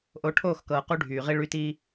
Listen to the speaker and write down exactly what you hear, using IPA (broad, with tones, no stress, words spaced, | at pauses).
ʔo˨˦ʈʰoː˦˨xkɤː˨ qu˦ɖʱyː˨ʁi˦ ɭy˦ti˦